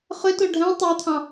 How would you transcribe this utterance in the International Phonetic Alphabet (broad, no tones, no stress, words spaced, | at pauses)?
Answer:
χøto ɖʱæ̃ tˤæt̪ʰɑ̃